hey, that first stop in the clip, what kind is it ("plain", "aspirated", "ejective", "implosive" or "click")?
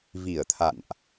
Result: aspirated